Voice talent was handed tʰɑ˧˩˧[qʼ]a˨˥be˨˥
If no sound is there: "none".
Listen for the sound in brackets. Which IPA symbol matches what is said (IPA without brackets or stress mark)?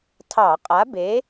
qʼ